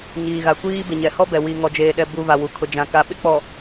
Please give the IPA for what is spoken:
ɲ iː˨ ɣ a˨ kʷ iː˦ b ɪ˨ ɲ ɛ˨ h ɔ˦ b ɛ˨ w i˨ ŋ ɔ˨ d͡ʒ eː˨ ɗ ɛ˨ b u˨ v a˨ w u˨ kʰ ʊ˨ d͡ʒ ã˨ k a˨ ɓ ɪ˦ k͡p ɔ˨

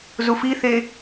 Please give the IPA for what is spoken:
z u f i θ e

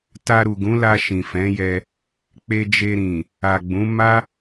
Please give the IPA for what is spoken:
t a˧ ɾ u˨ ɡ ũ˨˦ l a˧ ʃ ĩ˨ f ɛ̃˨˦ j ɛ˧ | k͡p e˧ d͡ʒ e˧ ɾ ĩ˨ | a˨ ɡ͡b ũ˨˦ m a˦

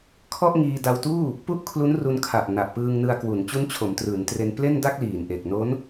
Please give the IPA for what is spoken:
kʰ ɔ˥˩ ʔ ŋ iː˧ d a˧ w t uː˥˩ | p u˥˩ ʔ kʰ l u˦˥ n r u˧ n kʰ a˨˩ ʔ n a˨˩ ʔ p ɯː˧ ŋ n ɯ˧ a̯ k w u˩˦ n t͡ɕ u˦˥ n t͡ɕʰ o˩˦ m t r ɯː˩˦ n t r e˧ n p l e˥˩ n d a˥˩ k̚ l iː˨˩ n ʔ e˨˩ k̚ n o˦˥ n

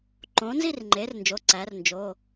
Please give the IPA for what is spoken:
ǃ õ˩˥ n z i˥˧ r ŋ͡ǃ e˩˥ r n d͡ʒ o˩˧˩ ǀ æ˩˥ r n d͡ʒ o˩˧˩

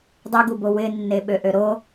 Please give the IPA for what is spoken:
dˤ ɨ ɡ u b o w ɪ nː e ɓ ø ʔ ø ɾ o

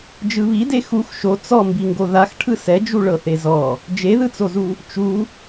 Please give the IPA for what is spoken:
d͡ʒ ɯ β i d e x u x ʃ o t͡s ɔ m b i ŋ ɡ o ð a x ʈʰ ɯ s ɛ d͡ʒ u ɭ ɤ θ e z ɔ | d͡ʒ e ð ɯ t͡s o z u | t͡ʃ u

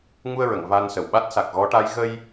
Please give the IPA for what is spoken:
ŋ u˧ ə̯ ɹ ə˨˩˨ ŋ v a˧ n s ə˨˩ w ɓ a˦˥ t̚ s a˨˩ k̚ ɣ ɔ˧˥ ʈ a˧˥ j ɣ ə˧ j

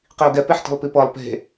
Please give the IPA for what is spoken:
q i ʊ̯ ɡ ɛ p e ħ t ə̤ lˠ p i p ɤ lˠ p e̤

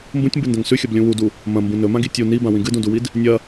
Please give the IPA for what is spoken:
m b ũ tʲ m b ɨ n d ɐ̃ ŋ s ʉ xʲ ɐ b lʲ ũ w u d u | m ɐ̃ m b ũ n ɵ m ã ɡ i tʲ u n i b ã w ĩ ɡ ɨ d ũ d u w i d | nʲ ɐ

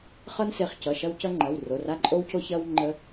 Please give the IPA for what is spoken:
χ ʌ˦ n s e˩˧˩ χ c ʌ˩˧˩ ʃ ɐ˦ w c ʌ˦ ŋ͡ǃ ɐ˩˧˩ w r o˩˧˩ r a˦ ǃʼ o˦ w c o˦ ç ɐ˦ w ŋ͡ǃ ə˦

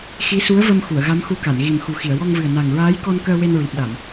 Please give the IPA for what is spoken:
x i˧˥ s u˧˥ ə̯ v ə˧ m x u˨˩˨ ə̯ ɣ a˧˥ m x u˧˥ k a˨˩˨ n ɣ i˨˩ m x u˨˩ x i˨˩˨ ə̯ w ɔ˧ ŋ v ɨ˨˩ ə̯ n a˨˩ ŋ ɹ aː˧˥ j k ɔ˧ n k əː˧ w e˧ n ɹ i˨˩ p̚ ɗ a˨˩˨ m

